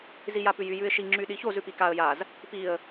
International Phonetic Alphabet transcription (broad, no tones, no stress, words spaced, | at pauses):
zijapʉjy jʉɪ̯ʃi ŋ͡ǁyɗiçoz ʉpikaə̯ jaz | piə̯